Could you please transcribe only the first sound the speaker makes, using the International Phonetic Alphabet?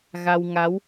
ɣ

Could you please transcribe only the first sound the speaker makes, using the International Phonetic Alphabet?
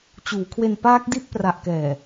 t͡ɕ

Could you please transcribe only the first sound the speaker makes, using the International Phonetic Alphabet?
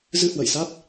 z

